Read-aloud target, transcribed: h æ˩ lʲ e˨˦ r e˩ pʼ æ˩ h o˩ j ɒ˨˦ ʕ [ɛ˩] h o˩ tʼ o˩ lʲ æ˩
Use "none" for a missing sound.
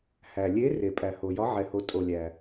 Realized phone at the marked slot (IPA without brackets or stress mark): ɛ˩